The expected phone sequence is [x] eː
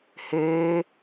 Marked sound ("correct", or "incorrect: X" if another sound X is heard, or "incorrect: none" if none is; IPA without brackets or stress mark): incorrect: h